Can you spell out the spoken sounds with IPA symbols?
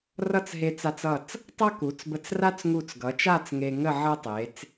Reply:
r ʌ˥˧ t͡s ɦ e˧ t͡s a˧ t͡s ʌ˧˩ t͡s | tˤ ʌ˥ k u˩˧ t͡s b ə˧ t͡s r a˥ t͡s ŋ u˧˩ t͡s ɡ ʌ˩˧ t͡ʃ a˥˧ t͡s ŋ e˧ ŋ ə˥˧ ʕ ʌ˥ tˤ e˩˧ t͡s

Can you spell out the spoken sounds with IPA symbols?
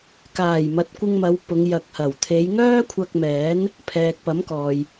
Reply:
k aː˨˩ j m ɐ˨ t̚ kʷ ɪ˧ ŋ m ɐ˨˧ w p ʊ˨˧ ŋ j ɐ˨ k̚ h ɐ˨˩ w t̪ʰ e˨˧ j ŋ œː˥ kʷʰ ɐ˧ k̚ m ɛː˨˥ n | pʰ ɛː˨ k̚ p ɐ˨˥ m k ɔː˨ j

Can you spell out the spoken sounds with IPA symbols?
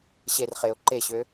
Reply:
ɕ e r χ e ʊ̯ ǃ e ɕ ø

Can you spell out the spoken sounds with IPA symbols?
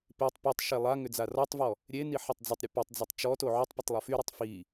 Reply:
p e tˤ p y tˤ ʃ e lˠ a ŋ ʏ d͡z a r ɔ tˤ v ɔ | ɾʲ e n i ħ a tˤ d͡z ʊ tˤ ɾʲ ʊ p e tˤ d͡z ɐ tˤ t͡ʃ ɔ t o ʕ ʏ tˤ p ʊ tˤ lˠ o f y ɾ i tˤ f i

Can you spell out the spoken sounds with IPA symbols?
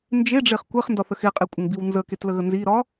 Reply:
n d͡ʒ e ɖ͡ʐ e χ kʷ e χ n d ɒ θ ə x e qʼ e kʷʼ ə ŋ b i w n z ə k e t l ə ɣ ə n z i ɾ ɒ

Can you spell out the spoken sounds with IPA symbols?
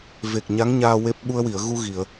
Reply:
v e˨˩ k̚ ɲ a˧˥ ŋ ɲ aː˧ w e˦˥ p̚ ɓ u˧ ə̯ w i˨˩˨ ə̯ ɣ u˧ ɣ i˨˩˨ ə̯

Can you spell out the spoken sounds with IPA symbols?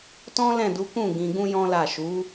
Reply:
t ɔ̃˦ l ɛ̃˦˨ d u˨˦ k ũ˦˨ ɡ ĩ˧ ɡ ũ˦ j ɔ̃˦ l a˦˨ ʃ u˨˦

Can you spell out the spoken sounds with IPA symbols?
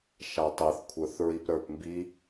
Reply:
ʃ a tˤ e θ kʷʰ ə˞ θ ɹ i p ɾ ə˞ p m b i

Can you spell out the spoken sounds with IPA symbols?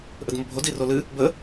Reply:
ʔ ə d m o bʱ o d i r o l ɨ | b ə

